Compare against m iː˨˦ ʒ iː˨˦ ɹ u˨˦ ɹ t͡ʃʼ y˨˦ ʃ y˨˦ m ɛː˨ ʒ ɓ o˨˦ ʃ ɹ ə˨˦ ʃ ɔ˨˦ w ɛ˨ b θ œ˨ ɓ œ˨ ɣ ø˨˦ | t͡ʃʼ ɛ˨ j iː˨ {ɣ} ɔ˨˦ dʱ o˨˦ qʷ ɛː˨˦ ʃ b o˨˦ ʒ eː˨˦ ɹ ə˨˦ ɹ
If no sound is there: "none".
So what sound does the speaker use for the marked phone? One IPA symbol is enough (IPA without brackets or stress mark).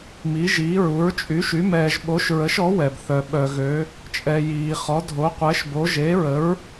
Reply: χ